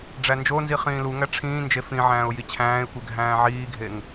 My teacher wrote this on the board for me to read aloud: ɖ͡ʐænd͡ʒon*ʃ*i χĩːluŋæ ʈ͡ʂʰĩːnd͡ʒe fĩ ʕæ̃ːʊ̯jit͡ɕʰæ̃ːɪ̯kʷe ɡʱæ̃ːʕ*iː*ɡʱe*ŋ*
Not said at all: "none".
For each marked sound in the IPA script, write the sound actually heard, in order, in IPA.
z, iː, ŋ

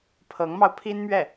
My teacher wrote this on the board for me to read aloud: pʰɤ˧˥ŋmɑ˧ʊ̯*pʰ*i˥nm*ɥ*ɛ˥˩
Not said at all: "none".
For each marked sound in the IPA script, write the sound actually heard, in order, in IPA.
pʰ, ɥ

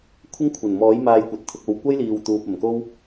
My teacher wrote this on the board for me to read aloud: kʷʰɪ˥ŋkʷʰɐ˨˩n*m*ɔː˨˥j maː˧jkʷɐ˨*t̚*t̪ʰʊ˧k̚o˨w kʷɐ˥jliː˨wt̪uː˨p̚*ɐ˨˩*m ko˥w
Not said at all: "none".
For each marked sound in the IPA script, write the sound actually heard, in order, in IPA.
m, t̚, ɐ˨˩

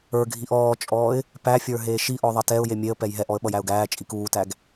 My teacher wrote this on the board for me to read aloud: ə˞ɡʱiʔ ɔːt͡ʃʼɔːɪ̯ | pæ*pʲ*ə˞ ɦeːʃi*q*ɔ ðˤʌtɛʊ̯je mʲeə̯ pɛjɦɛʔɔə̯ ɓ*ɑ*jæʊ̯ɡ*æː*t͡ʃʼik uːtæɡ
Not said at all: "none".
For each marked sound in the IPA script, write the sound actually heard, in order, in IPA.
fʲ, ʔ, ʌ, æː

